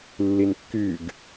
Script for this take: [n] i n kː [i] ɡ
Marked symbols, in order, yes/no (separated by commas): no, no